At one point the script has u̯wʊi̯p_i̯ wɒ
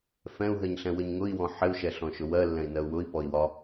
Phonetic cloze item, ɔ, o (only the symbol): ɔ